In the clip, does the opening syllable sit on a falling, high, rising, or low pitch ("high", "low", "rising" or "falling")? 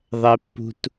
high